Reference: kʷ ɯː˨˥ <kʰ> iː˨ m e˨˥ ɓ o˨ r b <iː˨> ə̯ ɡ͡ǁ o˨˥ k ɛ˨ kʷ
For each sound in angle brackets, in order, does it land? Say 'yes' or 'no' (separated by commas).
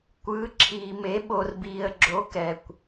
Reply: no, yes